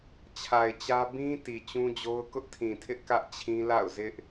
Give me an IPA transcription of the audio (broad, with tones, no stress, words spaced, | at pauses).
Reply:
t͡ɕʰa˨ɪ̯t͡ɕä˦ bĩ˦ ti˨t͡ɕũ˦d͡ʑo˦ʊ̯ kʊ˦ʔtʰĩ˨tʰɪ˦ʔ kä˦ʔt͡ɕʰĩ˦ la̰˦˨ʊ̯zɪ˦ʔ